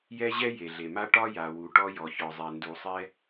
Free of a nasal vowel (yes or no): yes